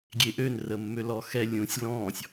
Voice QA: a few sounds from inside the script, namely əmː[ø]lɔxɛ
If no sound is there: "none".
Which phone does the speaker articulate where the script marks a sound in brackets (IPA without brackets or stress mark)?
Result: ø